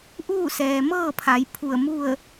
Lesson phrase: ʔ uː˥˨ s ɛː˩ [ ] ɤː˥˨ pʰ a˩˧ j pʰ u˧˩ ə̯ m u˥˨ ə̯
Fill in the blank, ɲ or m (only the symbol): m